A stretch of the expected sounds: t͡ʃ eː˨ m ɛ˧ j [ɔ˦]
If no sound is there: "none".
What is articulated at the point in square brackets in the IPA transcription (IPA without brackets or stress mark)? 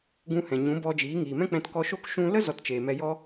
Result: ɔ˦